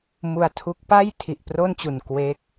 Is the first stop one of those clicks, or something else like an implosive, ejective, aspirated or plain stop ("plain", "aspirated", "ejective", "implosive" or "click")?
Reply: aspirated